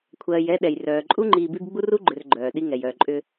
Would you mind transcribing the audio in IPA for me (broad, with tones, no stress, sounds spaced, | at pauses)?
kʷʰ ɜː˨ j ɛ˦ ɗ ɛ˩ j r œː˩ ǃʼ u˥ ŋ͡ǃ iː˨ b i˦ b ɡ͡b u˥ r u˥ ɡ͡ǃ ʏ˨ r ɡ͡ǃ œː˩ ɗ i˦ ŋ ɛ˩ j œː˨ ǃʼ ʏ˦